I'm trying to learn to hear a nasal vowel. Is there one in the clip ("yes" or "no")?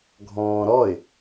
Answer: yes